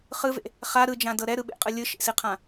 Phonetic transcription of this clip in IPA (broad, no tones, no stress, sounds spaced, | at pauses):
χ ɯ v ḛ | χ a ɾ ɯ d͡ʒ ã d ɤ ɾ ɛ ɾ ɯ ɓ ḛ qʼ ɯ lʲ ɯ ʃ ḛ s i qʰ ã